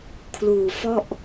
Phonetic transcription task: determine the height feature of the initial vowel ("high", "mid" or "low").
high